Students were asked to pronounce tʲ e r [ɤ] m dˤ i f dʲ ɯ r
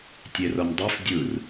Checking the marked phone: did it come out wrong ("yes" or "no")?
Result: no